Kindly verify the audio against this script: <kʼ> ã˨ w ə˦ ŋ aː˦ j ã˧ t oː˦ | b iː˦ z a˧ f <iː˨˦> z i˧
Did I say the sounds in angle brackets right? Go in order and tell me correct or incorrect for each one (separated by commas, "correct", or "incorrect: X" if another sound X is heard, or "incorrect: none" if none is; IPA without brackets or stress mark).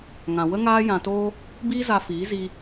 incorrect: ŋ, correct